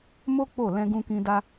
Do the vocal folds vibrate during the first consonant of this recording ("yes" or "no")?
yes